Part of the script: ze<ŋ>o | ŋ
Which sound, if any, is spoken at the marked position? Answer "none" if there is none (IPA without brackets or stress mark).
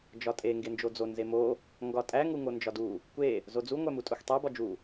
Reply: m